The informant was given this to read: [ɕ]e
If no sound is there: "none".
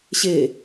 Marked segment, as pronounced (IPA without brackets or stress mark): ɕ